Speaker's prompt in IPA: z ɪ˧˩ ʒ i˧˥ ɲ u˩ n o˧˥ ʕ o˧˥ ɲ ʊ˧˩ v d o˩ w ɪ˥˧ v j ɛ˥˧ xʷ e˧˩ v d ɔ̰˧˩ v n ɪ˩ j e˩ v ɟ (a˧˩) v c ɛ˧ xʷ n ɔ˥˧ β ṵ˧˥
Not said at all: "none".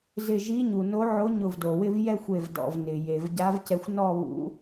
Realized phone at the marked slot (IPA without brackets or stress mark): a˧˥